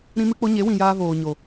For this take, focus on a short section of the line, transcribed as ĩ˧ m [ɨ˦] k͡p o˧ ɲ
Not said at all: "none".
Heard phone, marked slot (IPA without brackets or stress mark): ɨ˧